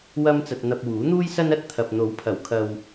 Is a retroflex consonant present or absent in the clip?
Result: absent